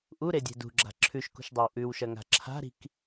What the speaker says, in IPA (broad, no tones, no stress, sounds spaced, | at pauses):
ʔ u ɾ e dʲ e̤ d ṳ ɡ͡ǁ a̤ ǁʰ ʉ ʃ k ṳ ʃ dˤ e w ʔ ʉ w ʃ ɐ ŋ a̤ ǁʰ a̤ ɾ i̤ k